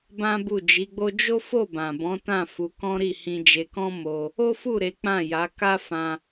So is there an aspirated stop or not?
no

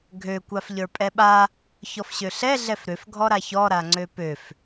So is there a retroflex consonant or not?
no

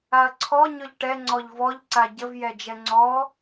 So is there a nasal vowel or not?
no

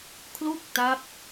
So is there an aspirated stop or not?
yes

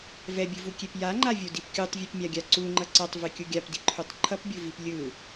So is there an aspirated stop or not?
yes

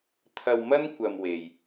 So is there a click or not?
no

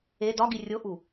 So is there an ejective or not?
no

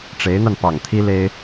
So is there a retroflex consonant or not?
yes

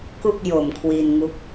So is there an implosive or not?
no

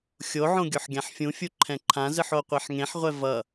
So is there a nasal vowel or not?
yes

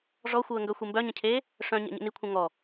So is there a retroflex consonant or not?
yes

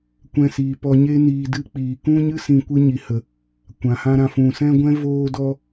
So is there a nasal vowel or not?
yes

